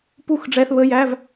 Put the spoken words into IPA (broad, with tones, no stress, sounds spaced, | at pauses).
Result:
p u˥˨ x ɖ͡ʐ ɛː˧ θ β ə˧˥˧ j æ˧˥˧ v